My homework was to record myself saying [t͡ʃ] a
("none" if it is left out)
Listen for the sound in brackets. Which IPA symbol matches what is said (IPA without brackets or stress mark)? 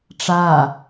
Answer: ʈ͡ʂ